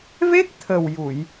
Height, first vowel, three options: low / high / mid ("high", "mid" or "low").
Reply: mid